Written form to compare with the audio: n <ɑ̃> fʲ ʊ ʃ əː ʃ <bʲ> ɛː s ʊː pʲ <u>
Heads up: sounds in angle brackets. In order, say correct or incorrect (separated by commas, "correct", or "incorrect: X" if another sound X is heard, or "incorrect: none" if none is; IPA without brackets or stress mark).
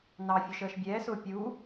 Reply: incorrect: ɑ, correct, correct